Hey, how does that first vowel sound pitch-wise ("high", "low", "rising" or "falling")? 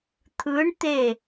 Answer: rising